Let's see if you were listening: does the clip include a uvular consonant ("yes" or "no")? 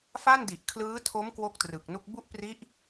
no